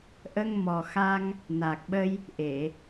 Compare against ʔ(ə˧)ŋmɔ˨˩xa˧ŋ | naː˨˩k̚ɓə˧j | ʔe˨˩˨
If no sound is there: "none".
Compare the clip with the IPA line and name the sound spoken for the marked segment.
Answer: ə˧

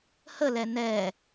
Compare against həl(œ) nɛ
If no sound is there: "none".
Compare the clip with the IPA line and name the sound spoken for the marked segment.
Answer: ɛ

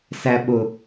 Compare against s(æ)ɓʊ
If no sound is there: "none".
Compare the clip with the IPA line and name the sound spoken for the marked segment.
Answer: æ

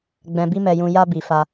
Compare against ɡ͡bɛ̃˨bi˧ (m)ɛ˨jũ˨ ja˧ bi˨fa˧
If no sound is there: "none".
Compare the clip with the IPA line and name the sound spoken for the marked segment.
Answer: m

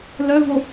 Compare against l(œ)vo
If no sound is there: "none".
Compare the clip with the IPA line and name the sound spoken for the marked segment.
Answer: œ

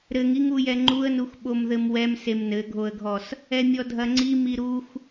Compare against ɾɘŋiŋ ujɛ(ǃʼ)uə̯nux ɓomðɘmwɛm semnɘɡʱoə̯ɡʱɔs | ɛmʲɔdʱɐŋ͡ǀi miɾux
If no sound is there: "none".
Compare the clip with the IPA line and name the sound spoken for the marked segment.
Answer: ŋ͡ǃ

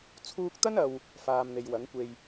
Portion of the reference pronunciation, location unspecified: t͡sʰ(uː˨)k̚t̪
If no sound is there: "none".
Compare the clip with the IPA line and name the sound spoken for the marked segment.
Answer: uː˧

